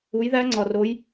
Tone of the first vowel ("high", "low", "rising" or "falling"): rising